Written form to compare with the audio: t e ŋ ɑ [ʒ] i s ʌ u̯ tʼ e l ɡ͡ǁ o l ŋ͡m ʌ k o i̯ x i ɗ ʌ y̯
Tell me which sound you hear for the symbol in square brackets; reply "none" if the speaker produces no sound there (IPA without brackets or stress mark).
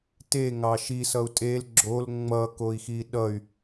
ʃ